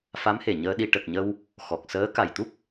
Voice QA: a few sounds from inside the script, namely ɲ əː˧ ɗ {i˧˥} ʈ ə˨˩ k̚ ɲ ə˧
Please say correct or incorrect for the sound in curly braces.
incorrect